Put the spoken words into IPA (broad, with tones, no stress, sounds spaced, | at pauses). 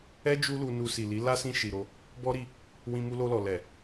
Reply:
ɛ˦ d͡ʒ u˦ l u˧ n u˧ s i˨ l i˨˦ l a˦ s ĩ˧ ʃ i˨ ɾ o˧ | b ɔ˦ ɾ i˧ | w ĩ˧ m u˧ l o˧ l ɔ˨ l ɛ˨